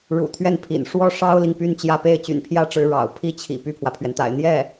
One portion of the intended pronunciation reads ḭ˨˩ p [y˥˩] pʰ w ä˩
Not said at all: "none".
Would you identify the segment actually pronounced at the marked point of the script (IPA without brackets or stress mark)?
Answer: y˥˩